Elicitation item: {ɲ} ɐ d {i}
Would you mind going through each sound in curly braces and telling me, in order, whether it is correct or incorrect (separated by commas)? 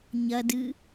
correct, incorrect